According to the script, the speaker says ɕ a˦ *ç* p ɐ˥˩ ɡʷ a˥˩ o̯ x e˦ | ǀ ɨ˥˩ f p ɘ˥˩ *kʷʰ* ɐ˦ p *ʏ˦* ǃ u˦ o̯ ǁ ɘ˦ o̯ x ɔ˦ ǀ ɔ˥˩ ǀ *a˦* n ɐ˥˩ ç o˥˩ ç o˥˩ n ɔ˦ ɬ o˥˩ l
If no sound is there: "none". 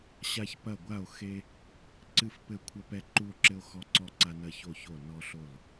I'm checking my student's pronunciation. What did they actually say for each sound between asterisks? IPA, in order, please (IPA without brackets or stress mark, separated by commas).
ç, kʷʰ, ɛ˦, a˦